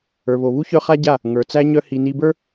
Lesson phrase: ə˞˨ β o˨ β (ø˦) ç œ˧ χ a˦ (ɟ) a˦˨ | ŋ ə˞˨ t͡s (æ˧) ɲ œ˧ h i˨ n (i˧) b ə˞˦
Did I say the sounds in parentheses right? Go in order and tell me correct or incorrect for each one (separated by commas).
incorrect, correct, correct, correct